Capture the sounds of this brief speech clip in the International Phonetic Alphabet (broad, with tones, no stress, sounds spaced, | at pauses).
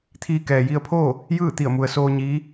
t̪ʰ iː˧ k ɛː˩ j i˧ ə̯ pʰ oː˥˨ | j ɯː˥˨ t̪ i˧˩ ə̯ m u˩ ə̯ s oː˧ ɲ iː˧˥